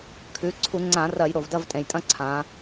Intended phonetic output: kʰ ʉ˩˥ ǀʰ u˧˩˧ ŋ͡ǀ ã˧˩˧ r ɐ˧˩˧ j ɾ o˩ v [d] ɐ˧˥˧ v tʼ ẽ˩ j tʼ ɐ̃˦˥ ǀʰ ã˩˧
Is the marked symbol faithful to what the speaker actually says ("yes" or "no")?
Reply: yes